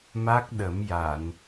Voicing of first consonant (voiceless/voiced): voiced